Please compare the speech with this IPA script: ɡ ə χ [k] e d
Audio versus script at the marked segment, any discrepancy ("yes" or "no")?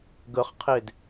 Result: yes